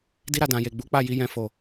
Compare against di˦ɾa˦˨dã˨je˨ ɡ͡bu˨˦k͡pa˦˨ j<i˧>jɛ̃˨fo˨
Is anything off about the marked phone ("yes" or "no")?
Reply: no